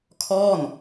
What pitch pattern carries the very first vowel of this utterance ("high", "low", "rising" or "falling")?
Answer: falling